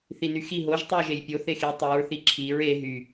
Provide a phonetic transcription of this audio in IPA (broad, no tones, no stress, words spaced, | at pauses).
θinyxi ɦoʒ tˤyʊ̯ʒejpʲo θexi tˤiɹ θiǁʰiɹ e ɦy